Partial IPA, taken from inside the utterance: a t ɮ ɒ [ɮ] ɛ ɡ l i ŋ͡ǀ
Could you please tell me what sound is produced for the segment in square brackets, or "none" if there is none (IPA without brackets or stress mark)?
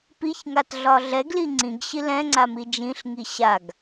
ɮ